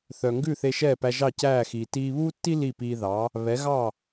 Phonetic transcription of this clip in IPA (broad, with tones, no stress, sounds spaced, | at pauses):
θ œ˩ ŋ ɡ ʉ˥˩ θ e˧ ʃ ɛː˥˩ p æ˧ ʒ ɑ˥˩ c æː˥˩ x iː˩ t iː˧ β uː˥ tː i˥ l i˥˩ p iː˧ ð ɑ˩˥ | β ɛ˩˥ ɣ ɑ˥˩